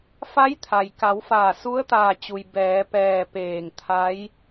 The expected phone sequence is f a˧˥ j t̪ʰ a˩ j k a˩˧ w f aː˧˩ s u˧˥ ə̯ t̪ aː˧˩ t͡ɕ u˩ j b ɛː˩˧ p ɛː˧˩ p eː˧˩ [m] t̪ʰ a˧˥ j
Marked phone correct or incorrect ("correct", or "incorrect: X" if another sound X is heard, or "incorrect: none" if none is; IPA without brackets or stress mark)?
incorrect: ŋ